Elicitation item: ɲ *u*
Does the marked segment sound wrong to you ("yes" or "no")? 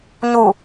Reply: no